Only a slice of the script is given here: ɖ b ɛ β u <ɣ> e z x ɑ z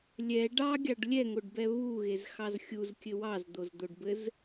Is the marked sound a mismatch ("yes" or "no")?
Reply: no